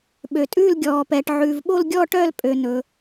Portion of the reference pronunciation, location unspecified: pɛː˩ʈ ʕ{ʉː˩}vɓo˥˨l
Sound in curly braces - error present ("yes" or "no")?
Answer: no